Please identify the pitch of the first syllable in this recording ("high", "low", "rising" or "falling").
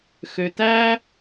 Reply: low